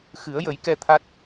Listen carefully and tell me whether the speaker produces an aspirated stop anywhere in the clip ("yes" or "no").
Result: yes